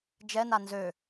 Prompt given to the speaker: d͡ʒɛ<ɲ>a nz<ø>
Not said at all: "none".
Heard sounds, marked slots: n, ø

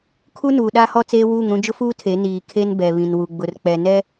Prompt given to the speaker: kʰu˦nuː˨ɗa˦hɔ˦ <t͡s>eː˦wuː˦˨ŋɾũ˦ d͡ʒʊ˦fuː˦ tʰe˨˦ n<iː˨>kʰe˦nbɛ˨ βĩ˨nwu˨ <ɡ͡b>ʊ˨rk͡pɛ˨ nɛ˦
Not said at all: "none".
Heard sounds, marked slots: t͡s, iː˨, ɡ͡b

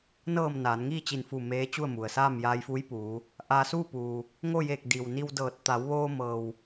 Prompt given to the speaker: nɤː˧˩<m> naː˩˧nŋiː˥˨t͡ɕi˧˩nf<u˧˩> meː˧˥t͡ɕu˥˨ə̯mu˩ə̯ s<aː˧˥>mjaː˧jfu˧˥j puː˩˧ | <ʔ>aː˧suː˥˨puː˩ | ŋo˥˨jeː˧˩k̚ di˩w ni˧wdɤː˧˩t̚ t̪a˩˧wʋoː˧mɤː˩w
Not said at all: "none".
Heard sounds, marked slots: m, u˧˩, aː˥˨, ʔ

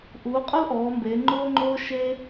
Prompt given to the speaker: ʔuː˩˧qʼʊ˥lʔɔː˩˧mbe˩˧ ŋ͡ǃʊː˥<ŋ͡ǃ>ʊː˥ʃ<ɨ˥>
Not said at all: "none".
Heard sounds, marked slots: ŋ͡ǃ, e˥

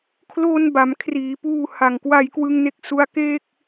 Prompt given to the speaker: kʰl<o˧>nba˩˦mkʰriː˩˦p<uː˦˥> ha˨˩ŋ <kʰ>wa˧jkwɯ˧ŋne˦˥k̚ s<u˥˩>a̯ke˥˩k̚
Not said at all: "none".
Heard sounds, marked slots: o˧, uː˧, k, u˦˥

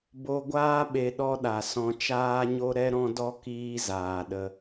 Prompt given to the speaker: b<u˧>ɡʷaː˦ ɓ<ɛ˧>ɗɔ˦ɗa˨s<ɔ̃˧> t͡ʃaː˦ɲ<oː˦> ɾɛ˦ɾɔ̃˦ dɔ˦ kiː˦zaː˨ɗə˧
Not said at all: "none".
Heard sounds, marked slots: o˧, e˧, ɔ̃˧, o˦

